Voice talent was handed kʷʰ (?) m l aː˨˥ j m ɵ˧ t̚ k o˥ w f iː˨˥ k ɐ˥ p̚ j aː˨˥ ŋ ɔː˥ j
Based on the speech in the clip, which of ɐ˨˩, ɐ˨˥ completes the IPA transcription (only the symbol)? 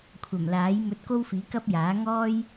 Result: ɐ˨˩